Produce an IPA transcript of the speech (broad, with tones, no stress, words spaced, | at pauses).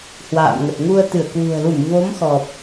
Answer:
hwa̰ː˧˨mŋə˨˩t̚ ŋu˧ə̯t̪ɨ˧˩ə̯kwṳ˨˩ə̯ lu˧˩mvo˨˦m xɔ˨˩p̚